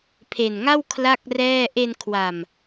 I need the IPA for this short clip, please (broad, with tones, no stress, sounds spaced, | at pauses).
pʰ e˨˩ n ŋ a˥˩ w kʰ l a˥˩ k̚ r ɛː˥˩ ʔ e˧ n kʰ w a˨˩ m